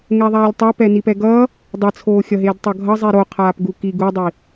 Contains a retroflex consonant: no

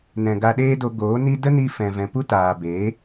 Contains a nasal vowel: yes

